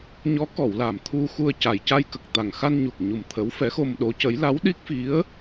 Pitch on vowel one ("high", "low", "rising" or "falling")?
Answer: rising